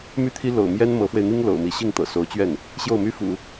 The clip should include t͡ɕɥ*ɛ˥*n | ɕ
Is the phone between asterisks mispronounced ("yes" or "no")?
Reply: yes